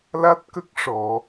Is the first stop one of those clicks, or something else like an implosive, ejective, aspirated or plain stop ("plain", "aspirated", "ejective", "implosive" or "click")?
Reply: plain